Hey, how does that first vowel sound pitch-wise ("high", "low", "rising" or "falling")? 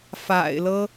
low